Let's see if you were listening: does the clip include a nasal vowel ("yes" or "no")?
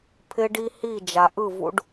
no